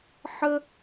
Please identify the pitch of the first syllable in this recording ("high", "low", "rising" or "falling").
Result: high